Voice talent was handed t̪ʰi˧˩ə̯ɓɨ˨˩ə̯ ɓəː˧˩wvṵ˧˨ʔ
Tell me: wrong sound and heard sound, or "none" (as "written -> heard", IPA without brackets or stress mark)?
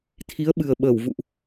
i˧˩ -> i˨˦